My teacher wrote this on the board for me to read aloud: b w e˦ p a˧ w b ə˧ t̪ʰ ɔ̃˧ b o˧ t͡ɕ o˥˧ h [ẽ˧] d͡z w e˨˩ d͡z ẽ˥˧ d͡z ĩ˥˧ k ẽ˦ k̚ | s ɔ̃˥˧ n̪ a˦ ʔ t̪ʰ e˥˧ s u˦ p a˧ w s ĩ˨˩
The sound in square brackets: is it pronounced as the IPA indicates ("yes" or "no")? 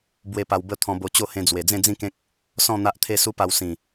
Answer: yes